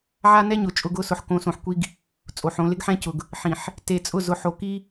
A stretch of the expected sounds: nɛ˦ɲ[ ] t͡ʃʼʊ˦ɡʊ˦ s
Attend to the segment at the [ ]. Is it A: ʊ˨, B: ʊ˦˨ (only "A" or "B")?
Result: A